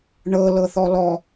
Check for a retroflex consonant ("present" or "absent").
present